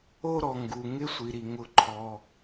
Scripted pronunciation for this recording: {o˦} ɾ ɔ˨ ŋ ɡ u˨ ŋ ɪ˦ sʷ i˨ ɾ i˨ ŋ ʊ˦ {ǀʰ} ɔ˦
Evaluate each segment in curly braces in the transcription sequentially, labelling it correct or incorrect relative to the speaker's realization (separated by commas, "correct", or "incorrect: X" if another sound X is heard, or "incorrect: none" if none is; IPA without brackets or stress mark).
correct, incorrect: ǃʰ